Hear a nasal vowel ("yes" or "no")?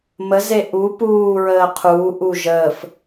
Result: no